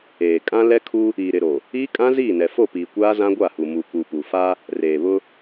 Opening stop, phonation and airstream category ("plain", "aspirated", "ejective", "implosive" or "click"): ejective